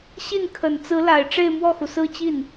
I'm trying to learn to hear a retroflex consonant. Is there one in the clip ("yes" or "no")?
yes